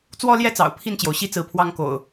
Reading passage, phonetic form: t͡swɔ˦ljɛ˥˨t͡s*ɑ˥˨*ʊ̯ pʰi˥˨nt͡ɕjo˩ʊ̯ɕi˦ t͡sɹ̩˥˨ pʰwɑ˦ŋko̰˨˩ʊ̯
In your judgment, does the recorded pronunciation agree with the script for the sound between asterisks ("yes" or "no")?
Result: no